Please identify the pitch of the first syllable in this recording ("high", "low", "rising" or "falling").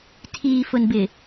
low